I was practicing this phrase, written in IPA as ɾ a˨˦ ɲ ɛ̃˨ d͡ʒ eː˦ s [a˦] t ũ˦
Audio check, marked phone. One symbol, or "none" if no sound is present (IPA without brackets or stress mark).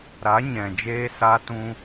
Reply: a˦